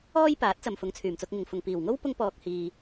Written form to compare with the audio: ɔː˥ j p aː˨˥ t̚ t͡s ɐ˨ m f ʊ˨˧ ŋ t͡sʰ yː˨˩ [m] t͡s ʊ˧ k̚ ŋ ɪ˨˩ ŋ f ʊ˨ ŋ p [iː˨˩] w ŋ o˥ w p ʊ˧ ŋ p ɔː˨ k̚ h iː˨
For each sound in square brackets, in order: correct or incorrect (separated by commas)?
correct, correct